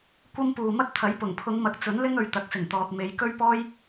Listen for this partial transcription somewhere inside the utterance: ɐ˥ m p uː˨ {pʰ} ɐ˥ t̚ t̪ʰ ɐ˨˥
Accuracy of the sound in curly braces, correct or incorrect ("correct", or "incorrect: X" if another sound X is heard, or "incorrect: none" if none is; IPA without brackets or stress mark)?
incorrect: m